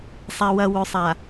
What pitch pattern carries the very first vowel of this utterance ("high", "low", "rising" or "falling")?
low